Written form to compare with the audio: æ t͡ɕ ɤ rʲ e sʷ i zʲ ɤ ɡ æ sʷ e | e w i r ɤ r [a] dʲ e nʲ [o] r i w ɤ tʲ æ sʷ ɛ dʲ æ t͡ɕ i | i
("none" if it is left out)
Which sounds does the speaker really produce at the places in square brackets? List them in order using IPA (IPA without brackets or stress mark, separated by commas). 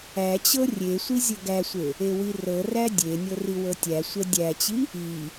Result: æ, ɤ